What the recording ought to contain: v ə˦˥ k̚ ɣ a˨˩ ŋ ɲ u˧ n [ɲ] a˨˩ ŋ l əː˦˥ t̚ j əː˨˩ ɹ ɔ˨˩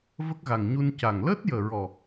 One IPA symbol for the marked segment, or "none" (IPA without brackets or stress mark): c